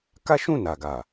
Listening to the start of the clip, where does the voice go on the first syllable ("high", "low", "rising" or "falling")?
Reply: high